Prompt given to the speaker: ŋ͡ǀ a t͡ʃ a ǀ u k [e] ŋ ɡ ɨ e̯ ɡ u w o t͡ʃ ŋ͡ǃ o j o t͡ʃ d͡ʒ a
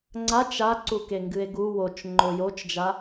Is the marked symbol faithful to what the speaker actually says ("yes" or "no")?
yes